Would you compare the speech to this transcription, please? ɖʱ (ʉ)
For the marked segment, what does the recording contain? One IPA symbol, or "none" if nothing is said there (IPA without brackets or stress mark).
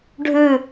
ʉ